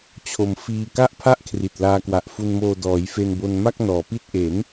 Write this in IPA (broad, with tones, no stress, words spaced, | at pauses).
t͡ɕʰo˧m fiː˧ ka˥˩ʔpʰa˥˩ʔkʰri˨˩t̚ laː˧kwa˨˩ʔfu˧nmoː˧ dɔː˩˦j fe˧nbo˧nma˥˩k̚ nɔː˩˦pi˥˩t̚ ʔe˩˦n